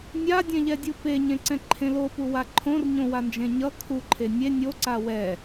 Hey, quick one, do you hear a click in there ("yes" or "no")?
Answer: yes